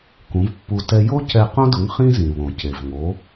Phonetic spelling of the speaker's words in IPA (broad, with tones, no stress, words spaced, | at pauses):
kũ˩˥vpːu˧ tɛ˧ jo˥cɛ˧ qõ˥dʊ˩˥ŋ χĩ˥zĩ˩βõ˩ ce˩vŋo˩˥